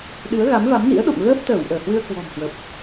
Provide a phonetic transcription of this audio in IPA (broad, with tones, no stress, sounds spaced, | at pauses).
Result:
ɗ ɨ˨˦ ə̯ ɣ a˨˦ m v a˨˦ m n ḭ˧˥ ə̯ ɗ o̰˧˨ ŋ ɣ əː˦˥ p̚ t̪ əː˧˩ w ʔ əː˧˩ h w ɨ˧ ə̯ k w ɔ̤˨˩ m h w ə˨˩ p̚